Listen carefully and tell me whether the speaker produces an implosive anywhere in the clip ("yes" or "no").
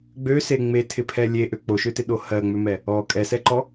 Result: yes